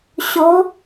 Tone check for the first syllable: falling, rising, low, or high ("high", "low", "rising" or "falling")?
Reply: rising